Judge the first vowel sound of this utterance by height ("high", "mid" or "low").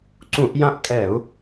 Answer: high